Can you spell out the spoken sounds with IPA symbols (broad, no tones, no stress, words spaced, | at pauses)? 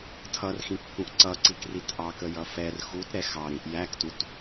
tʰʌrxĩ kːũʔǀʌǀik ritʔɑkə jʌfɛr xut ɾɛxɑɾĩʔ jæktut